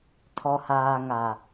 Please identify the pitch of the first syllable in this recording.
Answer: low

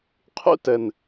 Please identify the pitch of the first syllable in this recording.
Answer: high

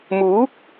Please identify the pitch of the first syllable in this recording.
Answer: rising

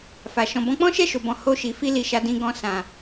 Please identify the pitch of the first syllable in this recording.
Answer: low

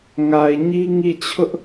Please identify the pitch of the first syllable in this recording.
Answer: low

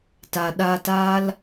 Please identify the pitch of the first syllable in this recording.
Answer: low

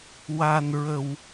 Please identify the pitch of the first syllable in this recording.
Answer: low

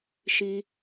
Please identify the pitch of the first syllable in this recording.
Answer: high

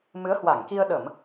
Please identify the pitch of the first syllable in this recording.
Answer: rising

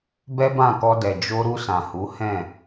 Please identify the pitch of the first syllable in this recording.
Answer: high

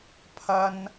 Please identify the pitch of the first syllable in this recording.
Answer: high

